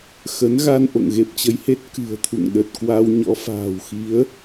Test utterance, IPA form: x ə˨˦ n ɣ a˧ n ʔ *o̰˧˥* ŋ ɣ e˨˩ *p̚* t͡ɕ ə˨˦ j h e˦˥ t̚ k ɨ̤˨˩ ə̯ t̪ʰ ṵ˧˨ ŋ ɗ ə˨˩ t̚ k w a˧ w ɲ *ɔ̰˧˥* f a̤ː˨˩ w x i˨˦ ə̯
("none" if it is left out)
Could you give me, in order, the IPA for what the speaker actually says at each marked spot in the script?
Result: o̰˧˨, p̚, ɔ̰˧˥

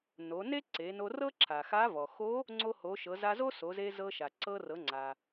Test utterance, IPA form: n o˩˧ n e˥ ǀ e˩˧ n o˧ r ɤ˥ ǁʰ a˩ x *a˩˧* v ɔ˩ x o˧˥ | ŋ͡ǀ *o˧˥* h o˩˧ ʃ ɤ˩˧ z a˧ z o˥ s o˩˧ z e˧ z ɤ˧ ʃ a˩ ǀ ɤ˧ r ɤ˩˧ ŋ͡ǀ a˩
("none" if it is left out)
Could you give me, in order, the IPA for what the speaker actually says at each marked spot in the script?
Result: a˧˥, o˧

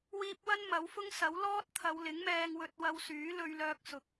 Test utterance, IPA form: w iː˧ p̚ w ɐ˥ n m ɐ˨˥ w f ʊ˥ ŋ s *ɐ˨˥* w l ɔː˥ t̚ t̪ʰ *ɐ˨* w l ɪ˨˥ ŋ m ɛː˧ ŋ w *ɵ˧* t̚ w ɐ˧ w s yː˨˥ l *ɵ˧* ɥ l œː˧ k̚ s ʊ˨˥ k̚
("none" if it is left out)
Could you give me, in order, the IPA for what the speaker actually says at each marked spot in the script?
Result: ɐ˨˥, ɐ˨˧, ɵ˧, ɵ˧

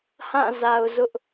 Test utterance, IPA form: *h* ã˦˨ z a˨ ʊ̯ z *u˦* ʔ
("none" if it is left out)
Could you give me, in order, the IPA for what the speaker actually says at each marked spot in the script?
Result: h, ʊ˦

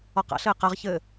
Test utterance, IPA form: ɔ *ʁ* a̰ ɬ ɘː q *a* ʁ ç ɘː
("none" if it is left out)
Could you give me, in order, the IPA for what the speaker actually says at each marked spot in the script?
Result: q, a

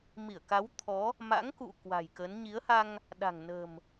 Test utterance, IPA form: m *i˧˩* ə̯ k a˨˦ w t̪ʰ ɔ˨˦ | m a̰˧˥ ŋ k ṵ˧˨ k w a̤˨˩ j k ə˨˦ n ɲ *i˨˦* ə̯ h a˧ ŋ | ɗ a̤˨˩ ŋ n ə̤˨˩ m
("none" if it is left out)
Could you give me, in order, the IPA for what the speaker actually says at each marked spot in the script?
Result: i˧˩, i˨˦

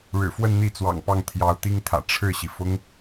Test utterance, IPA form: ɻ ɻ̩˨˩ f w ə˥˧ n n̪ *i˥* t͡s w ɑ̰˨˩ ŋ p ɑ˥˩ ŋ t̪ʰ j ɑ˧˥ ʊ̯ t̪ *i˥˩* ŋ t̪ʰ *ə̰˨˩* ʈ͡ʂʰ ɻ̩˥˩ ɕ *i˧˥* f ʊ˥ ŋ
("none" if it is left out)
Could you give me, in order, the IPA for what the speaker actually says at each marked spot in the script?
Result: i˥˩, i˥, ä̰˨˩, i˩

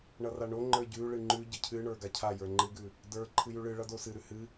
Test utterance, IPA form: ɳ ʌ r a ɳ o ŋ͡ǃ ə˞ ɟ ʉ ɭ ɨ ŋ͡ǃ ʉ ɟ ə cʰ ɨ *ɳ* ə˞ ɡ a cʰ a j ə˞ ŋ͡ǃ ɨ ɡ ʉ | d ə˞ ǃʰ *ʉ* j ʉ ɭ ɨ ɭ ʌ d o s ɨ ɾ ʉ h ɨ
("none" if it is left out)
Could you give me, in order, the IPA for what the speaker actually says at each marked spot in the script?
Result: ɳ, ɨ

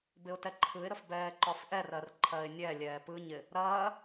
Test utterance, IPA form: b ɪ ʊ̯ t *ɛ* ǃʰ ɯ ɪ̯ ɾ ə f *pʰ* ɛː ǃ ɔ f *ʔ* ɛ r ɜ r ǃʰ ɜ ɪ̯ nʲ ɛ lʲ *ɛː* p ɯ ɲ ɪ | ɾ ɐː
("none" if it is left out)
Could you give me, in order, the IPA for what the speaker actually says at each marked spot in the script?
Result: ɛ, b, ʔ, ɛː

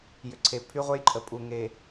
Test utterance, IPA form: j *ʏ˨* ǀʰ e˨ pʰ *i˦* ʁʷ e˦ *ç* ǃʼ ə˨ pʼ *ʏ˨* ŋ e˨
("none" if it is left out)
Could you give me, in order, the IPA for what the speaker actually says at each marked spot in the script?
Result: ʏ˨, y˦, j, u˨

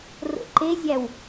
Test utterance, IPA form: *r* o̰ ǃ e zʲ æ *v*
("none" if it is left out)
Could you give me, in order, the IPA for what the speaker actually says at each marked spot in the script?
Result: r, w

